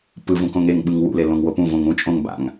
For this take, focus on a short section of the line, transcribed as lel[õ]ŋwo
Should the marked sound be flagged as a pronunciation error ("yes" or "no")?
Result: no